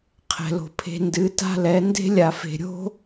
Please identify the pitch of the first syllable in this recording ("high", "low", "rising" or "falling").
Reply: low